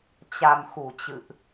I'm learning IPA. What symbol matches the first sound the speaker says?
t͡ɕ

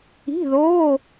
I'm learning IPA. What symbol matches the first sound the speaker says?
i̤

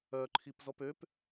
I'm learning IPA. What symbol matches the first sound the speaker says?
œ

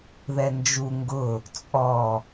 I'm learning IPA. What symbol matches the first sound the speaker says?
ð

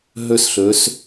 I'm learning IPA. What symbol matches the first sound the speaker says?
ɦ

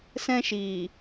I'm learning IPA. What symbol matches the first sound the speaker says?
s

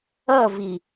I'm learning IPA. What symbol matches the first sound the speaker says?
ʌ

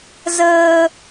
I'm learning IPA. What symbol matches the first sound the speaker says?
z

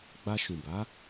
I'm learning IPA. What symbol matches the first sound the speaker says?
ɡ͡b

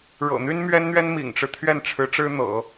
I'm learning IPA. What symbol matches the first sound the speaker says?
ɻ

